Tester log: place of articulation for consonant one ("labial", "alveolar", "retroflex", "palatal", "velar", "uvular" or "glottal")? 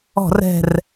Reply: alveolar